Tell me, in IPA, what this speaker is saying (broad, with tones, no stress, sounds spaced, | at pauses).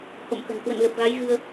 h o̰˧˨ m x ə̤˨˩ n k w ə̰˧˨ n l ə˨˩ p̚ ɣ a˨˦ j ɣ ɨ˧ ə̯